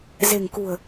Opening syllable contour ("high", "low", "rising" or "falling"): low